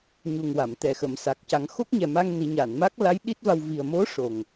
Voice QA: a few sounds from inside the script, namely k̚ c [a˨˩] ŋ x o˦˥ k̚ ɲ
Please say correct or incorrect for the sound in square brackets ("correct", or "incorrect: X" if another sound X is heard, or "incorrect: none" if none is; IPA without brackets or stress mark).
incorrect: a˨˩˦